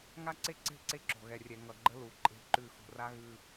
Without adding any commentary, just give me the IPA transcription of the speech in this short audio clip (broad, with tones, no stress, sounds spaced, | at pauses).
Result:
ŋ a˦ ǀ e˦ ǀ e̤˦˨ ǀ e˦ ǁ o̤˨ ɣ ɛ˨ rʲ ɛ˨ ŋ ʌ˨ ɡ͡ǃ ə˦ l u˨ ǃʼ e̤˦˨ ǃ ʉ˦˨ x ṳ˨ r a˦ ɣ ʉ˦